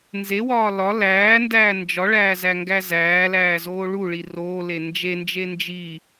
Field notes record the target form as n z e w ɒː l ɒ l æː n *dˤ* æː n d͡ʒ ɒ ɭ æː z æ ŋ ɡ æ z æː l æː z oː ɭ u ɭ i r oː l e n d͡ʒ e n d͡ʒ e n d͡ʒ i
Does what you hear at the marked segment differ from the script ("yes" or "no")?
yes